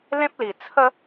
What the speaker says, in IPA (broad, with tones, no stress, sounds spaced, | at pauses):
l ẽ˦ p̚ l i˨˩ t͡sʰ ə˦